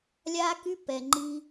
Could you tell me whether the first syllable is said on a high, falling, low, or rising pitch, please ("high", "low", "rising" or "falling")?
high